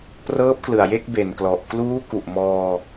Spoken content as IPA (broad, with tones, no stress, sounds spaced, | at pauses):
p r ɤː˦˥ p̚ k l ɯ˨˩ a̯ j e˥˩ k̚ b e˨˩ n k l ɔ˨˩ ʔ k l uː˦˥ k u˨˩ ʔ m ɔː˧